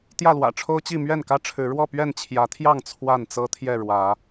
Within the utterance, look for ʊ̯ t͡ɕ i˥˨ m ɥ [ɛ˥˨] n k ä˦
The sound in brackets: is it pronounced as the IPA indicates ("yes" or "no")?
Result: yes